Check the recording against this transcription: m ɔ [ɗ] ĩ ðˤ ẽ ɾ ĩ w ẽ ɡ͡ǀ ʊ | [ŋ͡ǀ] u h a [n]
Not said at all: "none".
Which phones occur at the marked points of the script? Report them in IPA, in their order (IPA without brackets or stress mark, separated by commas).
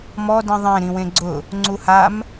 d, ŋ͡ǀ, m